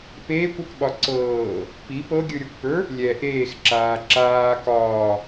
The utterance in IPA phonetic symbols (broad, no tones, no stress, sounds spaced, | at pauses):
p eː kʷ ɒ k ɓ ɒ ǀ ɤː | p i p ɤ ɡʲ ɯ ɾʲ ə˞ kʷ p ə˞ | lʲ ɛ ʔ eː x ǁ aː ǁ aː k ɒː